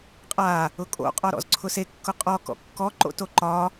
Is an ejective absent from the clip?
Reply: no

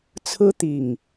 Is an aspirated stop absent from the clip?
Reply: no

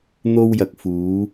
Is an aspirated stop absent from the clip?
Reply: yes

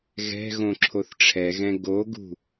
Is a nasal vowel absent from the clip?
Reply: no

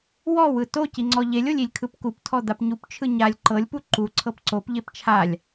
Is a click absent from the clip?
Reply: no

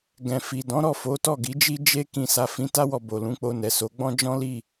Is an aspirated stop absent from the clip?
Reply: yes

